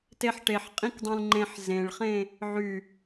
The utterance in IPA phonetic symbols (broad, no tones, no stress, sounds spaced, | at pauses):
t e ħ ʈ e ħ qʼ ĩ k dˤ ũ l ŋ͡ǃ ẽ ħ z ẽ ɭ χ ẽ | ʕ y